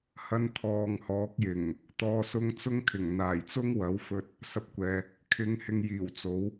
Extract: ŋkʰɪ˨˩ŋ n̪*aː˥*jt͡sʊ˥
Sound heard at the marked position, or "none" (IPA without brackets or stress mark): aː˨˩